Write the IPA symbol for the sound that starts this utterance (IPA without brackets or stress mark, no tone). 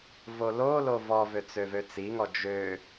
v